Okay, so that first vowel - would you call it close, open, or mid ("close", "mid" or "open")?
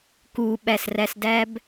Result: close